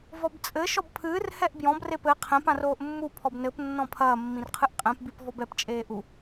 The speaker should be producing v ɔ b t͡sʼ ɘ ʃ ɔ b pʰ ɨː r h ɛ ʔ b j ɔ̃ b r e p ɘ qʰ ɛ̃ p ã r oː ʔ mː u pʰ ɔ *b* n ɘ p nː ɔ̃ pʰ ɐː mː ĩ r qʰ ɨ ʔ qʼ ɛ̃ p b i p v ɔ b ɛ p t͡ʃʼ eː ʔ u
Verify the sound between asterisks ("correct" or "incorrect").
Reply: correct